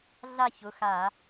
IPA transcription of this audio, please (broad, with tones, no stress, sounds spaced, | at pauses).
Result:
ɮ a˥˧ ç ʊ˩˧˩ x a˧˩˧